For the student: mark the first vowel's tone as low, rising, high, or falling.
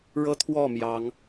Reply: high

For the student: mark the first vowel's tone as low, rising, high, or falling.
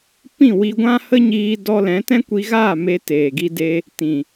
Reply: falling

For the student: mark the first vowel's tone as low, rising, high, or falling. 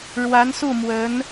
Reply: rising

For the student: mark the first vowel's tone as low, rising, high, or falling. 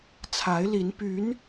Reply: rising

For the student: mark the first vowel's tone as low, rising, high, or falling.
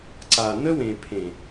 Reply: low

